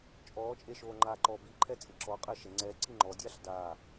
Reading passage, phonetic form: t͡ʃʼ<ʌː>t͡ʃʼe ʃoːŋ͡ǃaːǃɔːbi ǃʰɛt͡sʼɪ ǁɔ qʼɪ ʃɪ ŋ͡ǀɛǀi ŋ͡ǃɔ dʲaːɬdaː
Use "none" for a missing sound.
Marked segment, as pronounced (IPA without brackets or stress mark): ɔː